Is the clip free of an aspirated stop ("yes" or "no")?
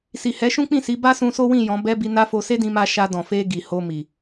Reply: yes